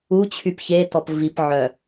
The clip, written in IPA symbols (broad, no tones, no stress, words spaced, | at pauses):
ut͡ɕʰyp çetɔp vipʕœ